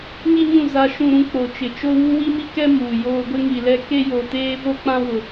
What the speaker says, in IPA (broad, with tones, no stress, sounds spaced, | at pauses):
ŋ i˦ ɲ ũ˦˨ z a˦ ʃ ũ˦ ɾ ũ˦ k͡p o˨ t͡ʃ ɪ˨ t͡ʃ o˦ w u˦ w i˦ m i˦ k ɛ˦ m uː˨ j oː˦ ɡʷ ɪ˦ ŋ i˨ l ɛ˦ k e˦ j o˨ t eː˦ v o˦ k͡p ã˦ w ʊ˦